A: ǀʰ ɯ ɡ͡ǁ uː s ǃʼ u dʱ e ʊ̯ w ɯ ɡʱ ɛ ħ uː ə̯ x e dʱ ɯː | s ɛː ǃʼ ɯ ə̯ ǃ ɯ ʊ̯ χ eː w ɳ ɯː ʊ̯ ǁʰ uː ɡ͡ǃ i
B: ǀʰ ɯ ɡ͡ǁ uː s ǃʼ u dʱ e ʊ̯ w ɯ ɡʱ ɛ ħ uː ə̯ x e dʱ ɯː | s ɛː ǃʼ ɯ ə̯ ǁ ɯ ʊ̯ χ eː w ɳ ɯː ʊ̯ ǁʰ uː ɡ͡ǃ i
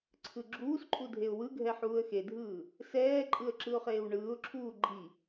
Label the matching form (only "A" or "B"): B